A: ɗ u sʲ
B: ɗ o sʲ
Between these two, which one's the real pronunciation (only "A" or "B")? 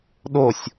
B